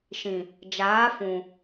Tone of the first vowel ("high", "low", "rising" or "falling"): low